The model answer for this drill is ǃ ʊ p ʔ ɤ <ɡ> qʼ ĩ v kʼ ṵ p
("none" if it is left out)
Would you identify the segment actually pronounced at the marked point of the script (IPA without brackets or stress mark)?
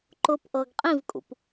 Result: ɡ